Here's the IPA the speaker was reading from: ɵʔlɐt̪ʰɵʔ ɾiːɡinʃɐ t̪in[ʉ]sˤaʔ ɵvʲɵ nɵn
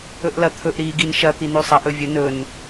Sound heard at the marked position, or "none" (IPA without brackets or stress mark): ʉ